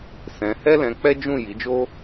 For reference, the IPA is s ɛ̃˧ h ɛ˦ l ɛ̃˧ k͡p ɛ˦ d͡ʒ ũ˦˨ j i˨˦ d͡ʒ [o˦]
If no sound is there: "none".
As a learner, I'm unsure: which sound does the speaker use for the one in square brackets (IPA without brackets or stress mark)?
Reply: o˦